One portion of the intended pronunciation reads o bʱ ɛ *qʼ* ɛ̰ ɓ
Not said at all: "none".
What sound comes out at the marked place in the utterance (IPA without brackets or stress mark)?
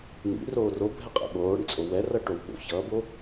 qʼ